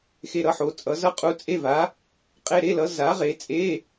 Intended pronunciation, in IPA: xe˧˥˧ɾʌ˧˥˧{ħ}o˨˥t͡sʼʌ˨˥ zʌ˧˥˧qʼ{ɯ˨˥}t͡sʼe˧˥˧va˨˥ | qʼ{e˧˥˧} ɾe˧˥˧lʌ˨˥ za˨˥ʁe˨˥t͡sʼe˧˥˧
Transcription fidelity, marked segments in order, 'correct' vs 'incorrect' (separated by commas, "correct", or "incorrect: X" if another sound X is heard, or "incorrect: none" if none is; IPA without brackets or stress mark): correct, incorrect: u˨˥, correct